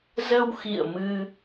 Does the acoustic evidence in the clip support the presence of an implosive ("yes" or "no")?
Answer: no